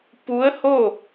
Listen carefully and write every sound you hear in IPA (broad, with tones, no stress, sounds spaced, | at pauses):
p u˧˥ ə̯ h o˥˨